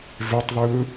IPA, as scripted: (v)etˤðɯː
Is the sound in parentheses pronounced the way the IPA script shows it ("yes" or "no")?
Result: yes